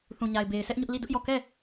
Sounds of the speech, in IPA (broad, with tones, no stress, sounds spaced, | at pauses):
θ ũ˨ ɲ a˨ ɪ̯ b e˨ ɪ̯ s ɛ˦ ʔ ɲ ʊ˦ ʔ l i˦˨ d ʊ˦ ʔ j ɔ˦˨ k ɛ˦˨